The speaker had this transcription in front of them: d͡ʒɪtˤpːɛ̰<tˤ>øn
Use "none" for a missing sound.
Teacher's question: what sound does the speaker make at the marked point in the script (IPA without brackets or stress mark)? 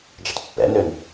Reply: n